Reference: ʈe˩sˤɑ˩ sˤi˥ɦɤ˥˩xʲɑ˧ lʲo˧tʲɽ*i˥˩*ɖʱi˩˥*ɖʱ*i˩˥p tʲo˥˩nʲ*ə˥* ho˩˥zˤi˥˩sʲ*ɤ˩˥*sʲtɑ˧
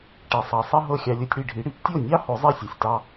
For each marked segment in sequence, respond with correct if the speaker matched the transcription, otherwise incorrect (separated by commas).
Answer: correct, incorrect, incorrect, incorrect